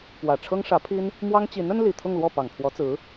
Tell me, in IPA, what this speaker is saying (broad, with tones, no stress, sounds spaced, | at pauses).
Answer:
p w ä˨˩ ʈ͡ʂʰ ɤ˥ ŋ ʂ ä˧˥ pʰ i˥ n | m w ɑ˥ ŋ t͡ɕ i˧˥ n ə˥ n l i˨˩ t̪ʰ ʊ˥˧ ŋ l w ɔ˥˩ p ɑ˨˩ ŋ pʰ w ɔ˧˥ t͡s ɹ̩˧˥